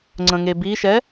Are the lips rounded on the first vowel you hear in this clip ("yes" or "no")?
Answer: no